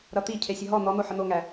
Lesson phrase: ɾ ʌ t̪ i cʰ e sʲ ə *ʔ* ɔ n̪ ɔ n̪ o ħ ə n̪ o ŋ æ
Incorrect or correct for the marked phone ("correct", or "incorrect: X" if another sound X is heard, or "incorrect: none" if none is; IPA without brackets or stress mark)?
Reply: incorrect: ɦ